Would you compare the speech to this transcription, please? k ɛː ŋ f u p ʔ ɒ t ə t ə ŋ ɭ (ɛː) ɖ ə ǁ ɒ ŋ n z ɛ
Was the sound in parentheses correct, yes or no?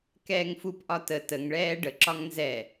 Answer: yes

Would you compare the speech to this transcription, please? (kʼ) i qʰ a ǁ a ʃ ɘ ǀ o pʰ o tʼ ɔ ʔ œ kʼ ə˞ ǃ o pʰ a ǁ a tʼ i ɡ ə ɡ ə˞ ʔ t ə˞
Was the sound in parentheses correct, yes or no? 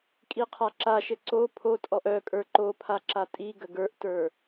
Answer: yes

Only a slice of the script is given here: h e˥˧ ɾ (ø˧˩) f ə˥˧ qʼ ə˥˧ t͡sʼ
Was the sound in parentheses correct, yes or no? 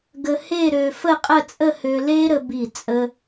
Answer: no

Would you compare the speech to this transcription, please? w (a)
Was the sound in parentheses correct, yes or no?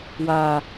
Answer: yes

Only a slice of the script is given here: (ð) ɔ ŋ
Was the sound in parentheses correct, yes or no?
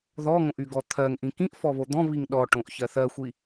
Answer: yes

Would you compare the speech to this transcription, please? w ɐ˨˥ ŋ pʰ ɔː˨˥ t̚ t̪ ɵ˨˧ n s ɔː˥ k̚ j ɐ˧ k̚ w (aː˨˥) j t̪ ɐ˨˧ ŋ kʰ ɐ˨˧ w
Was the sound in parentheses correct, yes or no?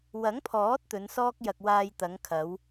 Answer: no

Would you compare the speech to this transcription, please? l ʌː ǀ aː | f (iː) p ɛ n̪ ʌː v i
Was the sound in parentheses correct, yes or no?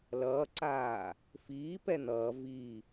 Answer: yes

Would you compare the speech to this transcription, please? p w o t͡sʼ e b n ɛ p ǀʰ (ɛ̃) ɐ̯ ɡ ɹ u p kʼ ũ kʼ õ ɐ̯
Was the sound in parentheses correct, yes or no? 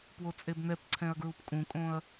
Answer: yes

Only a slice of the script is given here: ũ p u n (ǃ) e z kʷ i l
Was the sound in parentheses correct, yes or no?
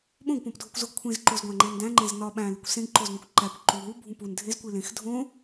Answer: no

